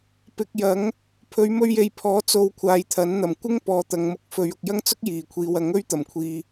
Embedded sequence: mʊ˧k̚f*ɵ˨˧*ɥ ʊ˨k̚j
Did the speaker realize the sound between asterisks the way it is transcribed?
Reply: yes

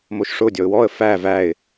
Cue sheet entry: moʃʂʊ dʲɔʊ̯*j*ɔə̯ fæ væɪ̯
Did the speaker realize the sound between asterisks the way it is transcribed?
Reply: no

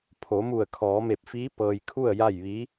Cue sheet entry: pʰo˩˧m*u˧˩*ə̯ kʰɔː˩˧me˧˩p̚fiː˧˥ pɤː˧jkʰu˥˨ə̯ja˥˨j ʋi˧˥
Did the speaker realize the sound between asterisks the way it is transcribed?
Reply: yes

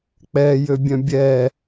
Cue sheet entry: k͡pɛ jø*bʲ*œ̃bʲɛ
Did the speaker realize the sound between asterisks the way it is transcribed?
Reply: yes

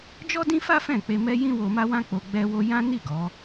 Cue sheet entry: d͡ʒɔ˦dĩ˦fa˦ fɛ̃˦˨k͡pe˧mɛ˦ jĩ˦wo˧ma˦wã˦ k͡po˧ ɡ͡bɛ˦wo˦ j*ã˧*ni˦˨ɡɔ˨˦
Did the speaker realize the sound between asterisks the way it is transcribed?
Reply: no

